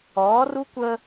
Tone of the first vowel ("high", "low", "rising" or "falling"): rising